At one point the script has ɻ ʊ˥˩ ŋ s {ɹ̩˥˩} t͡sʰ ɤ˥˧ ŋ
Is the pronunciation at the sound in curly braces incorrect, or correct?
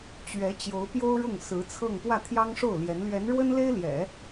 incorrect